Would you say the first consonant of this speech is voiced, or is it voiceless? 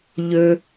voiced